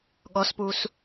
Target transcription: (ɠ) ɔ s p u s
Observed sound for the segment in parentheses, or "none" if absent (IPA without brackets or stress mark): ɠ